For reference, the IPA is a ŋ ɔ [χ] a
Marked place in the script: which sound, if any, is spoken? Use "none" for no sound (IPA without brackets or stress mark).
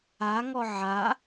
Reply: ʕ